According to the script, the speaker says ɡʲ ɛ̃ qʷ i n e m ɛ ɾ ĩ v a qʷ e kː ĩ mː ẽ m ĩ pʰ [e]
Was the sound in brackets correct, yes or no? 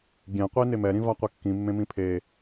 yes